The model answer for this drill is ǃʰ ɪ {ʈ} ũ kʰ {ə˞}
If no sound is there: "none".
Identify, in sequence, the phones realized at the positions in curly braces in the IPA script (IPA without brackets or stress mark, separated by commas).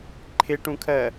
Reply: ʈ, ɜ